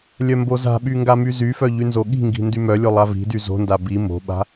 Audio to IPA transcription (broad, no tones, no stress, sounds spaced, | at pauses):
lʲ œ m b o z a̤ ɓ y ŋ ɡ a m y z y f œ ʎ y n z o ɠ i̤ ŋ ɡ i̤ n d y m œ lʲ o lˠ a v i̤ d y z o̤ n d a b i m o̤ ɓ a̤